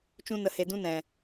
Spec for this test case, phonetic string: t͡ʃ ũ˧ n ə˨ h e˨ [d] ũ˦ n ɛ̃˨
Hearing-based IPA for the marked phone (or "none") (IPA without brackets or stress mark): d